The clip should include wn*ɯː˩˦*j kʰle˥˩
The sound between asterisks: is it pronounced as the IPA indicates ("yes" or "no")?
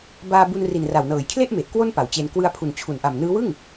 no